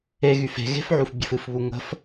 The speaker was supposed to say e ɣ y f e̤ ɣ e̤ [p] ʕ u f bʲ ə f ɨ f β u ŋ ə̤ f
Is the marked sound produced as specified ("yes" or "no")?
no